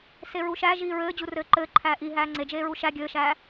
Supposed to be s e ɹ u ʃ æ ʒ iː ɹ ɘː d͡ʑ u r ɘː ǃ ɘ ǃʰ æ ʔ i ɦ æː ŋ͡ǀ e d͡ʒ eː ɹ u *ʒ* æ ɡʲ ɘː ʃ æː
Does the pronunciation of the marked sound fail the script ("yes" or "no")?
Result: yes